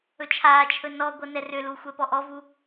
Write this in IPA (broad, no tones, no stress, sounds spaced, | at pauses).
ɵ t͡ʃʰ aː t͡ʃʰ ɵ n ɔ ɡʷ ɤ n ɛ r ʏ l u xʷ ɛ p ɔ ʔ ɔ v u